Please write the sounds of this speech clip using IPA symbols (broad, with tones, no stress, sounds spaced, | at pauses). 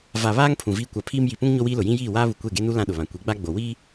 v a˨ β aː˦ ŋ pʰ ũ˨ v iː˦ kʷ a˨ pʰ iː˦ m j i˨ p ũ˦ ŋ ɲ o˦ w iː˦ l ʊ˨ j ĩ˦ j iː˦˨ w aː˦ β u˨ kʷ e˦˨ ɡ e˦ n u˦ l ã˦ ɗ ʊ˨ β ã˨ kʷ i˨˦ ɡ͡b a˦ ɡ͡b o˨ w iː˦